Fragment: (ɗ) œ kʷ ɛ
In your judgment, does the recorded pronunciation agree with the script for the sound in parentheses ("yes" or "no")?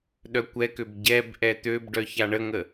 yes